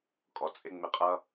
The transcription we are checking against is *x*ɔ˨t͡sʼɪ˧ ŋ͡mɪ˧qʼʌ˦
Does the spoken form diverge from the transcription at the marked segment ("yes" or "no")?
yes